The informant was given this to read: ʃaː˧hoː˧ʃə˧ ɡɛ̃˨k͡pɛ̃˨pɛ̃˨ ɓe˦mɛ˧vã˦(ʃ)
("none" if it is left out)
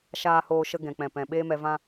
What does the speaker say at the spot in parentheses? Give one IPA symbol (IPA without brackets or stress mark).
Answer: none